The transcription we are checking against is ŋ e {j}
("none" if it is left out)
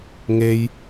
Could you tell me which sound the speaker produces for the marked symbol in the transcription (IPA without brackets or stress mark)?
j